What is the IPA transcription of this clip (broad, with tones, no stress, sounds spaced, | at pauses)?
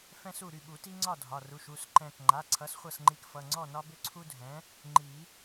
f ɛ̃˦ s u˥˩ ɾ y˥˩ ɓ u˨˩˦ t i˦ ŋ͡ǀ ɒ˥˩ dʱ ɒ˩˧˩ r u˩˧˩ ʃ u˥˩ s ǃ ɛ̃˧˩ k ŋ͡ǃ a˩˧˩ ǀʰ ʌ˩˥ s χʷ ʌ˧˩ s ŋ͡ǃ i˩˥ k f ʌ˩˧˩ ŋ͡ǀ ɔ˥˩ n ɒ˦ b ʏ˦ ǀʰ u˦ dʱ ɛ̃˩˥ | ŋ͡ǃ i˨˩˦